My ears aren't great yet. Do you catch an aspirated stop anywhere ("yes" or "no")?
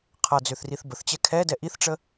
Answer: yes